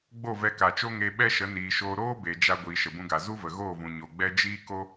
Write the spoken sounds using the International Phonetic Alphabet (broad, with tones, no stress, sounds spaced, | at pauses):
ɡ͡b o˦˨ v ɛ˧ k a˨ t͡ʃ o˦ ŋ e˧ ɓ ɛ˦ ʃ ə˨˦ n iː˨ ʃ oː˧ ɾ oː˦ b e˨ d͡ʒ a˧ ɡʷ iː˨ ʃ ə˨ b ũ˧ ɡ a˨ z u˦ v ə˨ ɣ oː˦˨ v ũ˨ ɲ o˨ ɡ͡b ɛ˦ d͡ʒ iː˦ k o˦